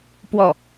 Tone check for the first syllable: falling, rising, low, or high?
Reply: falling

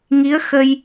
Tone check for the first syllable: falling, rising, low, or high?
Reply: rising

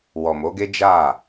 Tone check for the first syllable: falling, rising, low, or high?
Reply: low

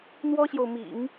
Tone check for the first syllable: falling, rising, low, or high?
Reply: high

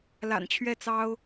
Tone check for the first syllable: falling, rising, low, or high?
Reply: low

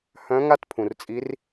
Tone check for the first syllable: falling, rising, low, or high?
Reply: rising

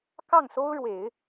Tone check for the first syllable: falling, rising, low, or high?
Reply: falling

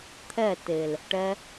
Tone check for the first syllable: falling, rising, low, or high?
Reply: falling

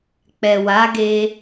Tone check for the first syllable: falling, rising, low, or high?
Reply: low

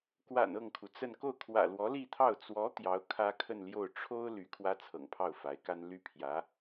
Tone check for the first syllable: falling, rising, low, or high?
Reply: low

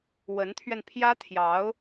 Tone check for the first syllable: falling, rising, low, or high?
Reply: rising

